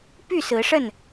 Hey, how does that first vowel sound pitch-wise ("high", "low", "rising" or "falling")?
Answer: falling